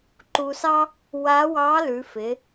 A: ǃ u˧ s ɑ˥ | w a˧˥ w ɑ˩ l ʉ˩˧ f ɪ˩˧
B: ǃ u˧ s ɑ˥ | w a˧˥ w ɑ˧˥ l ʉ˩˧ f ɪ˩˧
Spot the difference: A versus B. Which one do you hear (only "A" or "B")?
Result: B